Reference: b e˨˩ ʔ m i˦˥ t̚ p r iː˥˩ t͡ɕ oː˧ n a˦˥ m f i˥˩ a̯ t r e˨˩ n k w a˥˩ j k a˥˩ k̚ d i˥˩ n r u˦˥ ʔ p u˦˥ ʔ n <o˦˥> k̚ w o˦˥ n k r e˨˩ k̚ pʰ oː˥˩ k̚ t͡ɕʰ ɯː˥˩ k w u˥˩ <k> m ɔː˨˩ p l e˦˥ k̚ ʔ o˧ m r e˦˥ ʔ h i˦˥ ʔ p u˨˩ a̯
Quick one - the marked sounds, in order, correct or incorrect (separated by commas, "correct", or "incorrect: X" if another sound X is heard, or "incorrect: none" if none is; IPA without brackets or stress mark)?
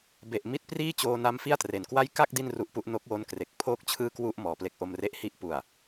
correct, incorrect: ʔ